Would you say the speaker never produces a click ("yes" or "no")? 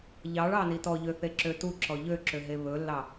no